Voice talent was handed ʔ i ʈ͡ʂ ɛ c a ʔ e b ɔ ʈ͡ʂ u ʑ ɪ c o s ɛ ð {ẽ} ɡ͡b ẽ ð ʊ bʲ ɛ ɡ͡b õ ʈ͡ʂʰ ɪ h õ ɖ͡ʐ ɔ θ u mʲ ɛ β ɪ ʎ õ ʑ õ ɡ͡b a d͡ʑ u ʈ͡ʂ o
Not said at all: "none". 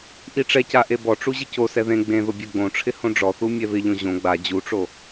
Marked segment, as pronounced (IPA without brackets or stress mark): ẽ